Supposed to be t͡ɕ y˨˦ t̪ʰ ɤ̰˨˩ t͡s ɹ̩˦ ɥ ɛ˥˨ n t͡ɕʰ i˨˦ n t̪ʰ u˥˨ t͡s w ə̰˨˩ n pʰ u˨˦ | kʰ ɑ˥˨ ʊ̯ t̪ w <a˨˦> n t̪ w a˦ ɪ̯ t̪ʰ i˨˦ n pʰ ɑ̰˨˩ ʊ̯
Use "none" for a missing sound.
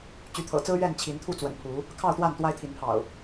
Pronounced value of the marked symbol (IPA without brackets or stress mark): a˥˨